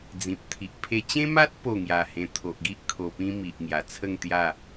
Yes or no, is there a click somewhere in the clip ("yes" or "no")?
no